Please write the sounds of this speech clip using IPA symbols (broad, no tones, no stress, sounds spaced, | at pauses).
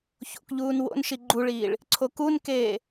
ç o̰ k ʎ uː n w o̰ n ʃ i ɡ͡ǃ u ɭ iː ɭ | ǀʰ o k u n k eː